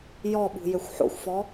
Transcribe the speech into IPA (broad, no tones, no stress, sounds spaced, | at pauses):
j ɔ ɓ ṳ j ø xʷ ħ o̰ xʷ f ɔ